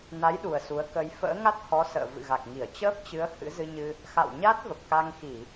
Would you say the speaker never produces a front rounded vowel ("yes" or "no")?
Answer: yes